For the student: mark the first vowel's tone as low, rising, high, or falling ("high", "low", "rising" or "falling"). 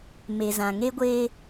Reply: low